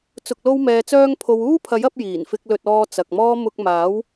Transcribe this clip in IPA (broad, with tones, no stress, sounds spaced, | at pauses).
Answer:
t͡s ʊ˨ k̚ l o˧ w m ɛː˨ t͡s œː˧ ŋ pʰ o˨ w uː˥ pʰ ɐ˨˥ j ɐ˨˥ p̚ j iː˨˩ n f ɪ˧ k̚ l ɵ˧ t̚ ɔː˧ t͡s ɐ˨ k̚ m ɔː˥ m ʊ˧ k̚ m aː˨˥ w